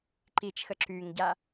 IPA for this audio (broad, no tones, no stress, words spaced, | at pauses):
ǃit͡ʃxə ǁyŋɟa